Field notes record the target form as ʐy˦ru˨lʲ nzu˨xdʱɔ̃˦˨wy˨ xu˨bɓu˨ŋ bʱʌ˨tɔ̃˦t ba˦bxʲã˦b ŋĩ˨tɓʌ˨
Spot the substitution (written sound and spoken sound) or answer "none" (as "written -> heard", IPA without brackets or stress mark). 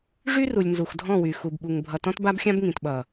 none